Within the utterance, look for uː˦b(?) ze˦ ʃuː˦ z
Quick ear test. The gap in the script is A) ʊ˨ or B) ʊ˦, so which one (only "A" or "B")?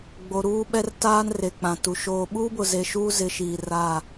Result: A